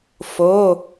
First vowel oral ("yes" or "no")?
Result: yes